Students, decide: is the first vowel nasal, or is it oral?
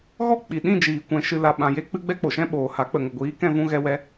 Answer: oral